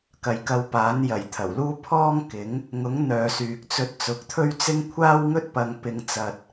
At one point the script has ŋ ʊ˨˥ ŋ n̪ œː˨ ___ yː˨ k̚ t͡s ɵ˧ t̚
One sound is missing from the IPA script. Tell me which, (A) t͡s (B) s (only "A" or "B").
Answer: B